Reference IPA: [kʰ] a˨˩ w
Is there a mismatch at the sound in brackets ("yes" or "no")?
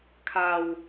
no